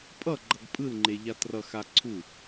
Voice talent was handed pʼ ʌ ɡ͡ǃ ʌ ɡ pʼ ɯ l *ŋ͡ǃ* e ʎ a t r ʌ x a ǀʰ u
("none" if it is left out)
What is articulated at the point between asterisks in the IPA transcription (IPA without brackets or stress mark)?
ŋ͡ǃ